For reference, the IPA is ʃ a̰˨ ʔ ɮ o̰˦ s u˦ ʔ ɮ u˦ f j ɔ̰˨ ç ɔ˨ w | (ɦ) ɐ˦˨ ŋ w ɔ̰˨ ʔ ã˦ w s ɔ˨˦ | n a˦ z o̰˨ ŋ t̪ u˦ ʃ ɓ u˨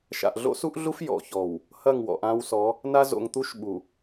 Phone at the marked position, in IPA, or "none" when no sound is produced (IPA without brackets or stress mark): h